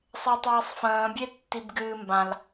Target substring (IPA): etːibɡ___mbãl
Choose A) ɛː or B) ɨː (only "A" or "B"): B